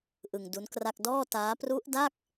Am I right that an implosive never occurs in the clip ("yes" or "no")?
yes